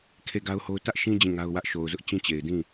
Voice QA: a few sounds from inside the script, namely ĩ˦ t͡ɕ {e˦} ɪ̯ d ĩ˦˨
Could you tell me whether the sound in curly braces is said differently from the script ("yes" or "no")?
yes